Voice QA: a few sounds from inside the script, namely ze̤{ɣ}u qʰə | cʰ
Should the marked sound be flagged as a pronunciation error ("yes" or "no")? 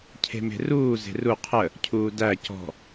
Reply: yes